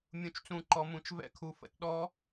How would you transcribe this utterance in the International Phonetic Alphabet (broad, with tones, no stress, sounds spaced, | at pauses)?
mʲ ũ˩ t͡ʃ t͡s ũ˩ ǃ ɔ˩ m ũ˩ t͡ʃ v ɛ̰˧ kʰ u˩˧ f ə̰˧˥ t ɗ ɔ˧˥